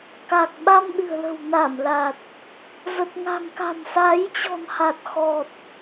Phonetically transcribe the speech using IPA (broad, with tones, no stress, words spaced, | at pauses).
ka˨˩k̚ɓa˧mɗɨ̤˨˩ə̯lə̤˨˩w na˧˩mla˨˩t̚ | zə˨˩t̚ŋa̤˨˩ŋka̤˨˩msa˨˦j t͡ɕɔ̤˨˩nha˨˩t̚xɔ˨˩t̚